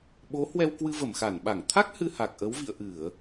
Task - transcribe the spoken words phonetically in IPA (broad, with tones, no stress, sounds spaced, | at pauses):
ɓ o˨˦ h w ɛ˧ w k w ɨ˧ v ə˧˩ m x a˧˩ n ɓ a˧˩ ŋ t̪ʰ a˦˥ k̚ h ɨ˧ h a˨˩ k̚ ʔ ə˨˦ w v ḭ˧˨ ə̯ ʔ ɨ˧˩˨ ə̯